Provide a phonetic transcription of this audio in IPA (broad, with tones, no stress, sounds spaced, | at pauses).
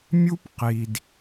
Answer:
mʲ u˦ p q i˨ d